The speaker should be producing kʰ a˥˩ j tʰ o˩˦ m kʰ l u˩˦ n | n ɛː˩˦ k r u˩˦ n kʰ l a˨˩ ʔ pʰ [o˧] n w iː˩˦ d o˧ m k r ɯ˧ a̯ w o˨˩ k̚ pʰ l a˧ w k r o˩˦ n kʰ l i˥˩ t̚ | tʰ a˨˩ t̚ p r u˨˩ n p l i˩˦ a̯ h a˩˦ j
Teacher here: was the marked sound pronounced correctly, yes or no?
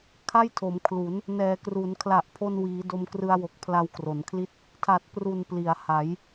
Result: yes